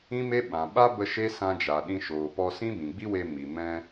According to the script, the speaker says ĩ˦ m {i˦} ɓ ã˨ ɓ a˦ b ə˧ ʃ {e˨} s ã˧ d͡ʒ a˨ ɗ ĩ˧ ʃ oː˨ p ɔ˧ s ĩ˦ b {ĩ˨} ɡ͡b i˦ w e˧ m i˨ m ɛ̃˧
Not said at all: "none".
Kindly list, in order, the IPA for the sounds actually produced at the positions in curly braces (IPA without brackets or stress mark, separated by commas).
e˦, e˦, ĩ˨